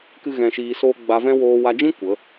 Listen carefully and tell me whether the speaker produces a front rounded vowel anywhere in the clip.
no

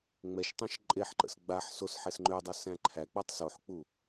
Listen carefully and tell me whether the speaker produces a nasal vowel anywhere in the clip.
yes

